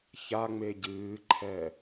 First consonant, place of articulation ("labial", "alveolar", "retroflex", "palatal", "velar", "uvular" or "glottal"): palatal